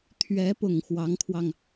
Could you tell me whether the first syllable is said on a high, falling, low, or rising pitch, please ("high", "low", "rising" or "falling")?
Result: rising